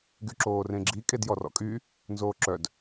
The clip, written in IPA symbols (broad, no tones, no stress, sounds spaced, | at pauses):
ɡ y ǁ oː r ẽ ɡ͡ǁ i kʼ e d j ɔ r ɔ̰ kʼ y | n z oː ǁ œ d